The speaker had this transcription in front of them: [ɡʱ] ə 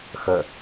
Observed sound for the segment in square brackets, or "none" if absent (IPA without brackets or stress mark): x